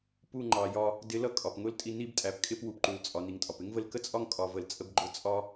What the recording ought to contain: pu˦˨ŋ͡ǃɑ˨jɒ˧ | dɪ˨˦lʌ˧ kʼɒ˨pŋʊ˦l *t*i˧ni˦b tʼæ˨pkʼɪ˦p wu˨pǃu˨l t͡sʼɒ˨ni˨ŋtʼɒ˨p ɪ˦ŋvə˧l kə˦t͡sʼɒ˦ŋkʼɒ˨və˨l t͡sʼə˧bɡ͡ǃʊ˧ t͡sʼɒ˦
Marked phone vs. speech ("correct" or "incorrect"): incorrect